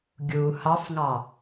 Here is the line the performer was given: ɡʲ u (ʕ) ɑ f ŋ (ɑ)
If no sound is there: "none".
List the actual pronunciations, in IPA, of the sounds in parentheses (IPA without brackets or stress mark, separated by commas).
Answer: h, ɑ